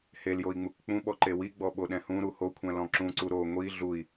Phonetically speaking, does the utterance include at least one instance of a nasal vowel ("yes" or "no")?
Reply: yes